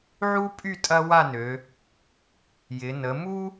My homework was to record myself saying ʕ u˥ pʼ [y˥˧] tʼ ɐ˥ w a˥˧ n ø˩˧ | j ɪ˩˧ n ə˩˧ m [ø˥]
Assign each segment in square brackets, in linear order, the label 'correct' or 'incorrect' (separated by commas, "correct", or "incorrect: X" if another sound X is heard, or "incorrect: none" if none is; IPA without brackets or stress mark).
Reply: correct, incorrect: u˥